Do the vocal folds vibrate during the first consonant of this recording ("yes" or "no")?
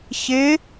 no